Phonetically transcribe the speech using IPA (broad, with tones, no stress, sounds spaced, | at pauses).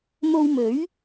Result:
m o˧ w m ɵ˨˥ ɥ